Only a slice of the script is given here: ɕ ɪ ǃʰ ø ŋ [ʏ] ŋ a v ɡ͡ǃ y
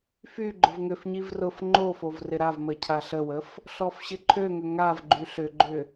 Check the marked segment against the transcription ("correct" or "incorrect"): correct